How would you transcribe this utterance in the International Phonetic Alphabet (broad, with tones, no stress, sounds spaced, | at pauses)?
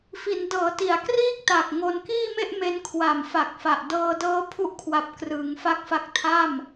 f i˩˦ n d ɤː˩˦ t i˩˦ a̯ k r iː˥˩ k̚ t a˨˩ k̚ ŋ o˧ n k iː˥˩ m e˥˩ ʔ m e˧ n kʰ w a˨˩ m f a˨˩ k̚ f a˨˩ ʔ d ɤː˧ d ɤː˦˥ pʰ u˦˥ ʔ kʰ w a˨˩ p̚ k r ɯː˩˦ ŋ f a˦˥ k̚ f a˦˥ k̚ tʰ a˥˩ m